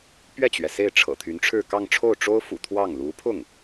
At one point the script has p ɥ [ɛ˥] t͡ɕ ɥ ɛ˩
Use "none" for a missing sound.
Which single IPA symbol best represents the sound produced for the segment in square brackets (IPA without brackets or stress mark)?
ɛ˥˩